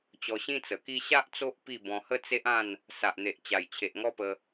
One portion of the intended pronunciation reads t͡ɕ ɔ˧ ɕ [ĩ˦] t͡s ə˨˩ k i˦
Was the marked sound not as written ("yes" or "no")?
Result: no